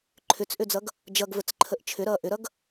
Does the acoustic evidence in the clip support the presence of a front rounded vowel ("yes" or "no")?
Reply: yes